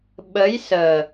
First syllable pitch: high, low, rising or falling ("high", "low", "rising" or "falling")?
rising